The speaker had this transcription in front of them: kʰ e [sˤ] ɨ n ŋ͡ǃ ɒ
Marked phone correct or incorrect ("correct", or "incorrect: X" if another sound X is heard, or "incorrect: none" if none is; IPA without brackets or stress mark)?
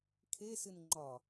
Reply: incorrect: s